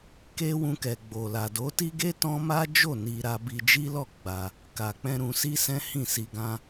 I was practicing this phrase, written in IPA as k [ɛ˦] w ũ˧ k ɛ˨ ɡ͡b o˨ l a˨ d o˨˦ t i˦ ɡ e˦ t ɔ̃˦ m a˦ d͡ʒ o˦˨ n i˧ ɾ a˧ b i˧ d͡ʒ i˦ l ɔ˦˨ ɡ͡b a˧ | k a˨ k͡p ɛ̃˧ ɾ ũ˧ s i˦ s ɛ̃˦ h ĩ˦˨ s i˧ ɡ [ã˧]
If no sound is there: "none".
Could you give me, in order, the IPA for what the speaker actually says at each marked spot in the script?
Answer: e˦, ã˧

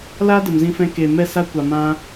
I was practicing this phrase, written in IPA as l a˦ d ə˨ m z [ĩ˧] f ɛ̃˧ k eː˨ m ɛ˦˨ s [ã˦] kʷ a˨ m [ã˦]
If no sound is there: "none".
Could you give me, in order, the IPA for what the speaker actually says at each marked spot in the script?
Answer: ĩ˧, a˦, ã˦

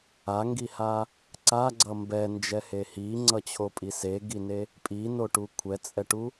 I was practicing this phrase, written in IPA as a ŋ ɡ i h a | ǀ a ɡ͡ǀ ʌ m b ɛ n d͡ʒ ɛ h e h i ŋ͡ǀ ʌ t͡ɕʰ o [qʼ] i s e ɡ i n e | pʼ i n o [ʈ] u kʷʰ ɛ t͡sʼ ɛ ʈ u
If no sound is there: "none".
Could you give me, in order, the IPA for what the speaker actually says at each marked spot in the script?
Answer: pʼ, ʈ

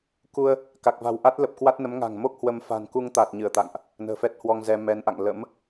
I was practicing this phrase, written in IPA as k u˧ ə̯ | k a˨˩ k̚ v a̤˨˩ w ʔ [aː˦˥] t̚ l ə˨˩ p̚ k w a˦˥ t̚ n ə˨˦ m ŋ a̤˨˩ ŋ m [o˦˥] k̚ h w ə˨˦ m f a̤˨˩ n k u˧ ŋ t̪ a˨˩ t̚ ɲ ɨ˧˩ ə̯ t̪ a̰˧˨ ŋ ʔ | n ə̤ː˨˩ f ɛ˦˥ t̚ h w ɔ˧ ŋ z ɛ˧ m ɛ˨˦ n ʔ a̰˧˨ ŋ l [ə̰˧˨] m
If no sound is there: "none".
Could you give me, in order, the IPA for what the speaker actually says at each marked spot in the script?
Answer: a˦˥, o˦˥, ə̰˧˥

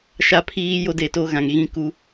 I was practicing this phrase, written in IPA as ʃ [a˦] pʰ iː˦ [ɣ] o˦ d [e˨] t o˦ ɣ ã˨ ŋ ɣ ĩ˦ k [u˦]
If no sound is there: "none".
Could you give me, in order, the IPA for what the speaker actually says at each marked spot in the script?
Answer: a˦, j, e˨, u˦

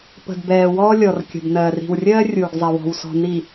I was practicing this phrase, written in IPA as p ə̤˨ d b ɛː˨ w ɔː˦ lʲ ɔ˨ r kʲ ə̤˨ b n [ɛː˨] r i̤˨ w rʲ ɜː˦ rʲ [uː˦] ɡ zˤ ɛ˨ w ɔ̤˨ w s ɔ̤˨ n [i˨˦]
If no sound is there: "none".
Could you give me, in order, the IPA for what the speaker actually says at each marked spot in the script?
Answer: ɜː˨, uː˨, i˨

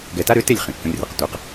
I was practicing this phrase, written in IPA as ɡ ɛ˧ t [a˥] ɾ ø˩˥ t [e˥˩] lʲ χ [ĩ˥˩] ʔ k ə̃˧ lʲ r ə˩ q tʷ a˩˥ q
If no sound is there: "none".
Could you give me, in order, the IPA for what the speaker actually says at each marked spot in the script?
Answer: a˥, e˥˩, ĩ˩

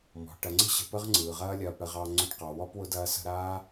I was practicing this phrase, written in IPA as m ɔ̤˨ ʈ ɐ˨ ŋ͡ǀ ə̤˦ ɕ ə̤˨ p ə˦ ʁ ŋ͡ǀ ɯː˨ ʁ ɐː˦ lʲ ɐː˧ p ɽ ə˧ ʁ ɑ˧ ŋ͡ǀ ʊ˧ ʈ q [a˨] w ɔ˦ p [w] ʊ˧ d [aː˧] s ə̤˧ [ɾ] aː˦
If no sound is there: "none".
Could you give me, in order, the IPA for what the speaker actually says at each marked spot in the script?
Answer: ɑ˨, w, ɐː˧, ɾ

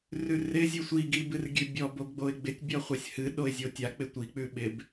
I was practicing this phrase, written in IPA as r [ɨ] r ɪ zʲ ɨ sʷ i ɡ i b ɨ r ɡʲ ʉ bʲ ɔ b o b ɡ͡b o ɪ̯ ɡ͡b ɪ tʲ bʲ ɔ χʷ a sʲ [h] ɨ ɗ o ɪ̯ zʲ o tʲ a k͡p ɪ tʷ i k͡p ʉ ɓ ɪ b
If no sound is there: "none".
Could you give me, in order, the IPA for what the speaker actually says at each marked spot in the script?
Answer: ʉ, h

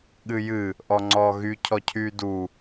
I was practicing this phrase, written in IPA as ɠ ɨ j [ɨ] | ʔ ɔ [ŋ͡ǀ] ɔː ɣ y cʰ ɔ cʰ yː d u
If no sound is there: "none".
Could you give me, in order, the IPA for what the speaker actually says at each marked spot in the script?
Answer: ɨ, ŋ͡ǀ

